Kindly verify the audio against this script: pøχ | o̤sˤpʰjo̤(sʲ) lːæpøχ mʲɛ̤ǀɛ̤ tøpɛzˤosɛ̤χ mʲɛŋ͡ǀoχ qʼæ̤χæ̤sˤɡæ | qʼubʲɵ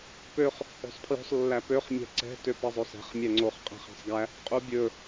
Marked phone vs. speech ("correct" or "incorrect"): incorrect